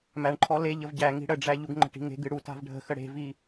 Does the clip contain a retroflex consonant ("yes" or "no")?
yes